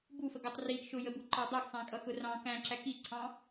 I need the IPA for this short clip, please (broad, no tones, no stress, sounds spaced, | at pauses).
b u f ə ɡ ʌ tˤ r i ɡ ʃ ʊ j ə b u ǃ ɑ dˤ ʊ ɡ sˤ æ̃ kʼ ʌ x ʊ r ɑ̃ k æ̃ ǁ æ k i ǀʰ ɑ̃